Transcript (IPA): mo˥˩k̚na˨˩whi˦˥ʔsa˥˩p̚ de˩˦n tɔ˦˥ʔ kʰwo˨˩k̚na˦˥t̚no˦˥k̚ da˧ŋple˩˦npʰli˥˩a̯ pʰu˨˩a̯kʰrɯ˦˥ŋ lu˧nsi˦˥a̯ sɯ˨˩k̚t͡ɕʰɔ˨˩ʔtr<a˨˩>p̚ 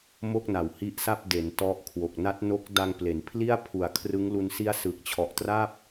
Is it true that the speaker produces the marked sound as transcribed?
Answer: no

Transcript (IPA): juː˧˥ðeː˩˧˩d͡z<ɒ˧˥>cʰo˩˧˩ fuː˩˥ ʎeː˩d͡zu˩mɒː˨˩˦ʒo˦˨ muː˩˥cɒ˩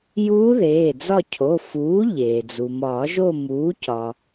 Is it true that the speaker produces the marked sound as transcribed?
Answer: no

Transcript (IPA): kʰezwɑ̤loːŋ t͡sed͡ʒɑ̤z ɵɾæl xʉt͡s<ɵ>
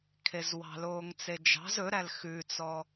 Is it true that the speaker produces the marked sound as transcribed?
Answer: no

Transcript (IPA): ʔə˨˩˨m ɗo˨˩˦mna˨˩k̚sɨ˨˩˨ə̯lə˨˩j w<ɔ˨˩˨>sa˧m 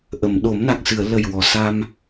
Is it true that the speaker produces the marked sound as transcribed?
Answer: yes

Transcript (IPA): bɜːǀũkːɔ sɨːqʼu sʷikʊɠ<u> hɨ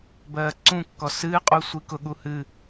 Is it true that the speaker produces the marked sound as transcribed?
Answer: yes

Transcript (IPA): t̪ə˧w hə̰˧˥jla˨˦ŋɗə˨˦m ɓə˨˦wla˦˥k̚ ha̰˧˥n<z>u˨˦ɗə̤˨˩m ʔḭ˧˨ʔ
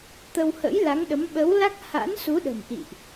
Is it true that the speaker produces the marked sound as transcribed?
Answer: no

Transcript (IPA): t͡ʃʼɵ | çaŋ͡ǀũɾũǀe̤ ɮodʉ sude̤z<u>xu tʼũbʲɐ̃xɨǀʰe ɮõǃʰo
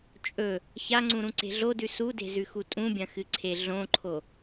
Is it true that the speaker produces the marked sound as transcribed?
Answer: no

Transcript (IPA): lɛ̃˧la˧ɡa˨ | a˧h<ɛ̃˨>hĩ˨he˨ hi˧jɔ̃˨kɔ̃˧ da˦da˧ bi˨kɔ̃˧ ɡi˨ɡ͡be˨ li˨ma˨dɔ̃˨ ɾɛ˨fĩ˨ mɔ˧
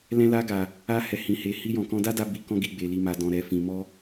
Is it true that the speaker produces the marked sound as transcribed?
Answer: no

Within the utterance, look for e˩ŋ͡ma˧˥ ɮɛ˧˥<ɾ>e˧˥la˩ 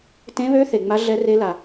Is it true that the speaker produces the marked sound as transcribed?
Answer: no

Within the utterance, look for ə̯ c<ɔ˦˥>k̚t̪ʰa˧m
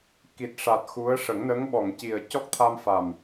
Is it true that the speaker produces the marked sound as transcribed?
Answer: yes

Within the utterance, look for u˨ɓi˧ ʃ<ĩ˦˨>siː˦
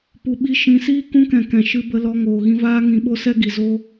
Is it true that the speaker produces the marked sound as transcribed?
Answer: no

